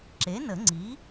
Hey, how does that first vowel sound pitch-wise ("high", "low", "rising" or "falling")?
rising